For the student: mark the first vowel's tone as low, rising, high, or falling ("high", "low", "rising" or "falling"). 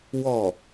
falling